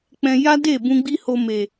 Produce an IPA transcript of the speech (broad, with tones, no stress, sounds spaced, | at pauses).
k͡p ɛ̃˧ j a˦ d e˦˨ b ũ˧ ɡ͡b i˦ h o˧ m e˨